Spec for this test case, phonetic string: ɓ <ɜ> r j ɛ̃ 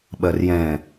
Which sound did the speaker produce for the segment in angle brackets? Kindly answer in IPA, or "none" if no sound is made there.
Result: ɜ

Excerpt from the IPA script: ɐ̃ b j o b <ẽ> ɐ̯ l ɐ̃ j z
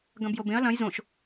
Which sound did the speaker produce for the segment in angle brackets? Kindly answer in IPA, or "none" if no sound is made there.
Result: ẽ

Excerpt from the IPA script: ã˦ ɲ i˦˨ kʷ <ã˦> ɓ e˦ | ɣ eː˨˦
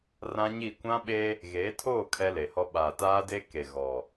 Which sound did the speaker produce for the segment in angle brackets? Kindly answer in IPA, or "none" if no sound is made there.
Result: ã˦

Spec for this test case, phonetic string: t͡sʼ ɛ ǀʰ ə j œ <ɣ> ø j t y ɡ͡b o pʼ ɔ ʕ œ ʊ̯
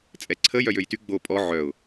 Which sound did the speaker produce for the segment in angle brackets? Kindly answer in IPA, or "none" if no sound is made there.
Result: j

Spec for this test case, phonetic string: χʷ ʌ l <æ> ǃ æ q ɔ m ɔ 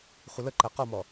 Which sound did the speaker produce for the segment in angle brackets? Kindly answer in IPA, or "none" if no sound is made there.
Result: ə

